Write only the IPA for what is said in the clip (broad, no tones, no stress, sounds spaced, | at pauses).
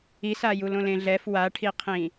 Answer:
i s a j u l õ l ẽ ɮ ɛ f w a ʈʰ i qʰ ĩ